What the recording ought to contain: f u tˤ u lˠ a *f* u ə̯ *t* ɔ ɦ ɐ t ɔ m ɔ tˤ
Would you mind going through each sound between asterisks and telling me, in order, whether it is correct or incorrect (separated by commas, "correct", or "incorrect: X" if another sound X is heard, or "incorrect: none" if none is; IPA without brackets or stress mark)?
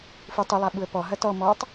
incorrect: ɓ, incorrect: p